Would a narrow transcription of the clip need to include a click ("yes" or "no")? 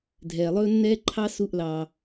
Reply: yes